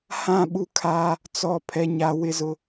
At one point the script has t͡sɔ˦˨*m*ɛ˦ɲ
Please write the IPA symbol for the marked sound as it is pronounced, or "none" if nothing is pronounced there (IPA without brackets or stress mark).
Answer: pʰ